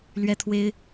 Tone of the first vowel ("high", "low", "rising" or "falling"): high